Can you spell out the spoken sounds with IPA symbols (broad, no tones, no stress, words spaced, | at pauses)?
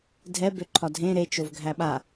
dʱɛ bøǃʰɒdʱẽ ɾet͡ʃov ɡʱæɓa